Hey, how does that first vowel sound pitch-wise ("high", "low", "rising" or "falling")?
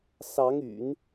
rising